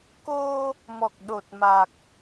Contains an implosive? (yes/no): yes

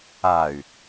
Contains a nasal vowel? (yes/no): no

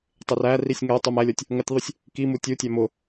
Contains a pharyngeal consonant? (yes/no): no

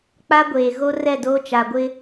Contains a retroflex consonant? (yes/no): no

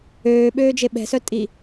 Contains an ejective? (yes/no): yes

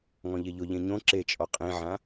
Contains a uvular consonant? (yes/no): yes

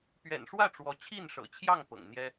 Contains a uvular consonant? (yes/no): no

